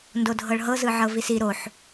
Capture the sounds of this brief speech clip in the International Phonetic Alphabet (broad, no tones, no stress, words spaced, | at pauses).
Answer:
ndodʱɤɭɦɤ zɯʕɤvisi ɾoħ